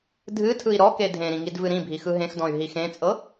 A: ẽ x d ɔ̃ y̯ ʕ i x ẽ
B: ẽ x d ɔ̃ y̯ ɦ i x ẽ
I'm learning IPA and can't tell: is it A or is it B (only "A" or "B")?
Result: B